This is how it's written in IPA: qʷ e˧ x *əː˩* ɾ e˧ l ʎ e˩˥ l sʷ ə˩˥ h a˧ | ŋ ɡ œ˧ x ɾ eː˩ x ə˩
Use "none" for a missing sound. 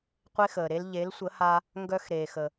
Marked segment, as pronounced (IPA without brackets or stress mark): əː˩